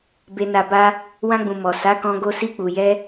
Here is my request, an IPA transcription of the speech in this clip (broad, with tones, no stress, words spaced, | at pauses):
be˨na˨ ba˧ | wã˧ɡ͡bũ˨ mɔ˨ sa˨˦kɔ̃˧ɡo˧ si˧k͡pu˨jɛ˧